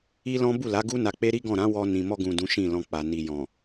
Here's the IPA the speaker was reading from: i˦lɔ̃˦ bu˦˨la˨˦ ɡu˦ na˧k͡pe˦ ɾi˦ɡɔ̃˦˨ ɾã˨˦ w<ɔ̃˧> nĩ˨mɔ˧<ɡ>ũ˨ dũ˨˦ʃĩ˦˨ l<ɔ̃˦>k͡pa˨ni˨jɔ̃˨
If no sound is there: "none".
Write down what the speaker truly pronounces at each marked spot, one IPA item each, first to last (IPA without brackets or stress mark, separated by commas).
ɔ˧, ɡ, ɔ̃˧